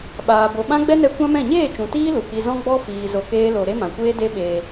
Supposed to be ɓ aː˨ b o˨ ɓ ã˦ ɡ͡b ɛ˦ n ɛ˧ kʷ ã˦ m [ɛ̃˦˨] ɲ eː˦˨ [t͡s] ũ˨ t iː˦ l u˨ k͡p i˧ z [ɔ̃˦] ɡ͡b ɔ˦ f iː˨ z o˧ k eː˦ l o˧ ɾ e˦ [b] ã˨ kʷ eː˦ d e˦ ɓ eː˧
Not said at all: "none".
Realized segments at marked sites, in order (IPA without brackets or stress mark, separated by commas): ɛ̃˦˨, t͡ʃ, ɔ̃˦, m